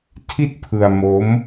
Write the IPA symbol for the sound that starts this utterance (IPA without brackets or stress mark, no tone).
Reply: tʰ